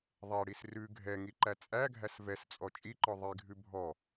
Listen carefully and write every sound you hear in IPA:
ðˤ ɛ ɽ i s r ʉ ɡʱ ɛ ŋ i ǃ æ t͡sʼ æ ɡʱ æ s v ɛ s t͡sʼ ɔ t͡ʃʼ i ǃ ɔ ðˤ i ɡʱ ʉ bʱ ɔ

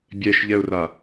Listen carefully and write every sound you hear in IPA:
bʲ ɛ ʃ ʎ ɛ ʊ̯ r a

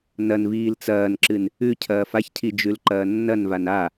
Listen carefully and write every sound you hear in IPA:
n ɐ n v iː l t͡s ɐː n ǁ ɨ n | ʉ cʰ ɐː f a ç cʰ i d͡ʒ ʉ l ǃ ɐː nː ɐ n v a n a

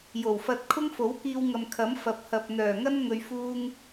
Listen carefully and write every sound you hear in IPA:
j o˨˩ w f ɐ˧ t̚ kʰ ʊ˥ ŋ f o˨˥ w k iː˧ w ŋ ɐ˨ m kʰ ɐ˨˥ m f ɐ˨ p̚ h ɐ˨ p̚ n̪ œː˨˩ ŋ ɐ˥ n ŋ ɵ˨ ɥ f uː˧ ŋ

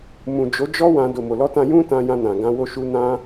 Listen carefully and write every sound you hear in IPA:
m ũ˨ d͡ʒ o˨˦ d͡ʒ ɔ˦ w ã˧ d o˨ m o˨ l ɔ˧ t ã˧ j ũ˦ t ã˧ j ã˧ n ã˨ ɡ ã˧ w o˧ ʃ u˧ n ã˦

